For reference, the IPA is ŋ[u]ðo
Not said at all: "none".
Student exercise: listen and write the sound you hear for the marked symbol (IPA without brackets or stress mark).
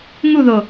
u